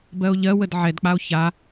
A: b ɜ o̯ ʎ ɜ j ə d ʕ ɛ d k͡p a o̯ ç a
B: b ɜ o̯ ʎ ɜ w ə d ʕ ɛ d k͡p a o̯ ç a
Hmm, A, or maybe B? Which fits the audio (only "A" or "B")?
B